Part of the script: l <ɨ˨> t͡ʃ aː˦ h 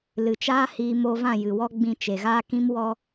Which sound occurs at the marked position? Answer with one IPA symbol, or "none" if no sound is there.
ɨ˨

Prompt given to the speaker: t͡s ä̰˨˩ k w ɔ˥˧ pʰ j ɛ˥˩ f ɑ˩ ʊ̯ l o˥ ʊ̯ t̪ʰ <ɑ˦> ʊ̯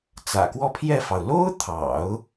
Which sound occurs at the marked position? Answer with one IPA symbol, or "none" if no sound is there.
ɑ̰˨˩˦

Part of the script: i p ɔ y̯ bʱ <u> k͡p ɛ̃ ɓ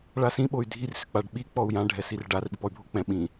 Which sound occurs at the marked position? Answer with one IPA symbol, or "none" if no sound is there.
o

